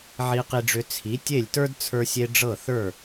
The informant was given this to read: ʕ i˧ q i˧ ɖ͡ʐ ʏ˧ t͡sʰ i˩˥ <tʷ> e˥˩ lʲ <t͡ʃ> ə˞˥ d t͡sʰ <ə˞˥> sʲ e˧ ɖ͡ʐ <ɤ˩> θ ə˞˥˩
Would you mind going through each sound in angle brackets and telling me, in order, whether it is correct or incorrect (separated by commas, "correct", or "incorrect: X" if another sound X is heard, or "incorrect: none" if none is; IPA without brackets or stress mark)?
incorrect: tʲ, incorrect: t, incorrect: ə˞˧, incorrect: ɤ˥˩